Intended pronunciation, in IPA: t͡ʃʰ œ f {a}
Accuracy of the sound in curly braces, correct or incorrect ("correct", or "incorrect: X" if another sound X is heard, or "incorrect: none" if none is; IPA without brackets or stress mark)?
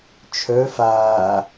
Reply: incorrect: aː